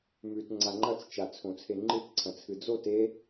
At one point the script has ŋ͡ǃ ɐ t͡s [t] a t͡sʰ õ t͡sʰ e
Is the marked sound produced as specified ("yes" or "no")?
no